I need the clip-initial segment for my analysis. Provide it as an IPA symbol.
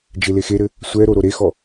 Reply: d͡ʒ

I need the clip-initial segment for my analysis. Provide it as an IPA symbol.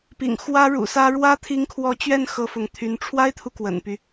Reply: p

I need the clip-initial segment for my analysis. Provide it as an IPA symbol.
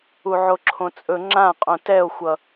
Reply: u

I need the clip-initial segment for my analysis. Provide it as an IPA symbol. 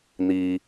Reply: n̪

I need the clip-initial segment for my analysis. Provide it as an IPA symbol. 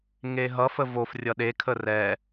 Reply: ŋ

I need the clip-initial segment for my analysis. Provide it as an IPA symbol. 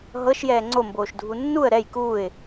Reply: ɦ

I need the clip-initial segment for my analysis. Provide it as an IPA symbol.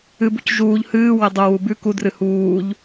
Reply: ɨ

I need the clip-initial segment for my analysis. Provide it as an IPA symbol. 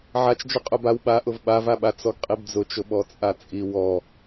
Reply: ʕ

